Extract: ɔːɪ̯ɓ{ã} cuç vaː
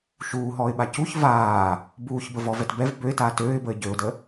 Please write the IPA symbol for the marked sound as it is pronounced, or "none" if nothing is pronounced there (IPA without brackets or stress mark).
a